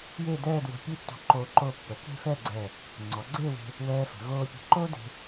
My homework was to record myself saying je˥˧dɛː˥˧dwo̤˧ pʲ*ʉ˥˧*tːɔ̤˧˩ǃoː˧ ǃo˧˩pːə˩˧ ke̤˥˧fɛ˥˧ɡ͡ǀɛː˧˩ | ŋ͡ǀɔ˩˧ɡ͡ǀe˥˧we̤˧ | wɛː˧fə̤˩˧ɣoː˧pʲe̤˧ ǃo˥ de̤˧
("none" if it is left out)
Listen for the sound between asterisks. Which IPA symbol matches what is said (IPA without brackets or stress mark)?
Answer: ʉ˥˧